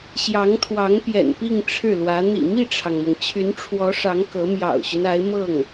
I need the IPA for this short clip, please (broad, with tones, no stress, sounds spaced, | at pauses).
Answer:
ɕ j ɑ˧˥ ŋ t̪ʰ w ɑ˧˥ ŋ p j ɛ̰˨˩ n p i˥˧ ŋ ʈ͡ʂʰ ɻ̩˥˩ l w ä˧˥ n̪ ḭ˨˩ m i˥˩ ʈ͡ʂʰ ɑ˩ ŋ m ɤ˩ ŋ t͡ɕʰ y˧˥ n ʈ͡ʂʰ w ɔ˧˥ ʂ ɑ˧˥ ŋ k ɤ˧˥ m j ɑ̰˨˩ ʊ̯ ɕ y˦ n a˧˥ ɪ̯ m ɤ˥˩ ŋ